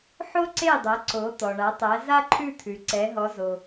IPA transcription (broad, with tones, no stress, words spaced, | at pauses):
ħo˥ǀe˥˩dˤɛ˩˥ ǀo˩˥ t̪ɔ˩ɳa˩˥tˤæ˩˥ za˥ǃʰʉ˥˩t̪ʰʉ˩ ǀɛ˩˥ɦɔ˩˥zo˩